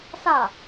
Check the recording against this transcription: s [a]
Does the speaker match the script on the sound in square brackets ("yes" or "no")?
yes